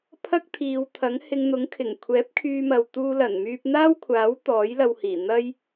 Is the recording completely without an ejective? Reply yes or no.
yes